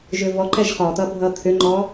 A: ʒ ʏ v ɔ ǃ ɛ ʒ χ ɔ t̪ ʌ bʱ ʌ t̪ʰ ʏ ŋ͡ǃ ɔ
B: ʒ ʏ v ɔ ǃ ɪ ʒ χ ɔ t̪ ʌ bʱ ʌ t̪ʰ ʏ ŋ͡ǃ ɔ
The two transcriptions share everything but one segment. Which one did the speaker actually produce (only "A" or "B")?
A